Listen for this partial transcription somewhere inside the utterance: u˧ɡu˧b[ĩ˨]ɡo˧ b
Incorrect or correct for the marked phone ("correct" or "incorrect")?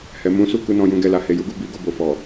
incorrect